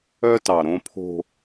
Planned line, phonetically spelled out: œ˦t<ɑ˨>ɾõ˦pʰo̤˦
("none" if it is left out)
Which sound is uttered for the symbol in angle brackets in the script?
ɑ˨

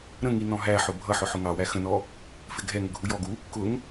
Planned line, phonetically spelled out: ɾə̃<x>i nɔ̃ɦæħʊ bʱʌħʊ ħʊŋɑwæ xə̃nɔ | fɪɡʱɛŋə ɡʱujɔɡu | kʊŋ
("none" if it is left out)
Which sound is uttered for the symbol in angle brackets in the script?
ŋ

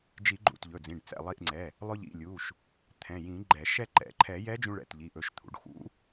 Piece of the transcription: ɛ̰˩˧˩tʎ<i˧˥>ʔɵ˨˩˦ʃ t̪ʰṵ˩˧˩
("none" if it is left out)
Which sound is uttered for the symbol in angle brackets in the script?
i˩˧˩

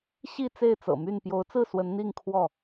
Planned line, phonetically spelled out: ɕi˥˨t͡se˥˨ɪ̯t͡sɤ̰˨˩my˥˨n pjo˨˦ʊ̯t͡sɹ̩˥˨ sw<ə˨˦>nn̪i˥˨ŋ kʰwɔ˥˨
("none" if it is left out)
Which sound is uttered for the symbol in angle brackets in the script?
ə˨˦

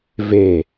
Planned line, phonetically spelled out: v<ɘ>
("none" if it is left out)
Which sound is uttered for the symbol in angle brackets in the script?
e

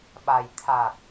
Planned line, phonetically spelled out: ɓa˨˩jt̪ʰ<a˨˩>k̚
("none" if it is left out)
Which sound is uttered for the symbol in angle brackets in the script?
a˨˩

